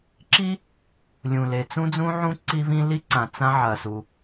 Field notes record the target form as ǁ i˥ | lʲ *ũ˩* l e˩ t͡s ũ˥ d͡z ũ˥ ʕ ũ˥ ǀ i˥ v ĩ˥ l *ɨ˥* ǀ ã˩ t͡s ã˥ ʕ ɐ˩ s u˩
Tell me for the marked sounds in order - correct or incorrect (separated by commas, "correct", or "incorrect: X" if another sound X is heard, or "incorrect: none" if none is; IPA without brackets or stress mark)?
correct, incorrect: i˥